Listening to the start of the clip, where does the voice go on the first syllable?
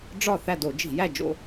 falling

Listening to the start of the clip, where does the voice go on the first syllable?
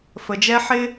low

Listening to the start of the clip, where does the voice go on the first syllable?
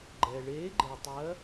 low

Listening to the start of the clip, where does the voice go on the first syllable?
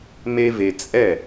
high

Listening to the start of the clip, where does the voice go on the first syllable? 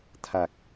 low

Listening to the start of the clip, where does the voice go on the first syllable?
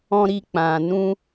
high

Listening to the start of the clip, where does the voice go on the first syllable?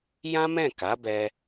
high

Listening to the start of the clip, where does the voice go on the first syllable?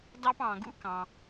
high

